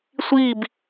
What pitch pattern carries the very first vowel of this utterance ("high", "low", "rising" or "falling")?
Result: falling